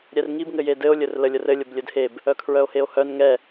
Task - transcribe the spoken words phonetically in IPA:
ɾʲ ɛ r ŋ i b ŋ ɘ j e d ɘ o̯ lʲ ɘ r l ə lʲ ə r ɘ lʲ ə b lʲ ɘ d h e b | œ kʰ ɹ œ o̯ h e o̯ h œ n ŋ ɛ

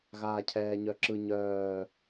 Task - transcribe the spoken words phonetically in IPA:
ɣ aː cʰ ɛː ɲ œ ǁ ɯ ɲ œː

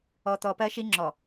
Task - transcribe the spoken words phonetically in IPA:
ɔ˨ t̪ ɔ˨ p ɜ˦ ʃ i˦ ŋ͡ǁ ɔ˨

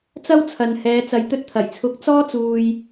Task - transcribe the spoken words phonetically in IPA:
t͡s ɐ˥ w t͡sʰ ɐ˨ n h ɛː˨˧ t͡s ɐ˨ j t̪ ɵ˧ t̚ t̪ʰ ɐ˨˩ j t͡sʰ ʊ˨˥ k̚ t͡s ɔː˧ t͡s uː˨ j

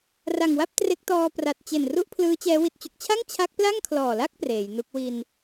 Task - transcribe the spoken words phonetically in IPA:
r a˨˩ ŋ w a˥˩ p̚ t r e˦˥ k̚ t ɔː˧ p r a˨˩ t̚ t͡ɕ e˨˩ n r u˥˩ ʔ pʰ l ɯː˦˥ t͡ɕ ɛː˦˥ w i˨˩ t̚ t͡ɕ u˨˩ k̚ t͡ɕʰ a˥˩ ŋ t͡ɕʰ a˦˥ k̚ p l a˥˩ ŋ kʰ l ɔː˨˩ l a˥˩ k̚ p r eː˩˦ j n u˦˥ k̚ w i˧ n

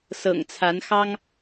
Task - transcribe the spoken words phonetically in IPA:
s ɤ̰˨˩ ŋ t͡sʰ a˨˦ n x ɑ˦ ŋ

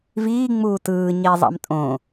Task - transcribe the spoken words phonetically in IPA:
v iː ŋ͡m uː t ɯː ɲ i zˤ ɑ̰ m tʼ õ

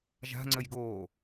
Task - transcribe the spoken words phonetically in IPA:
ʒ a̤ ŋ͡ǀ ə j ɡ o

